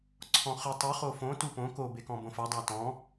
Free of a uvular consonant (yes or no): no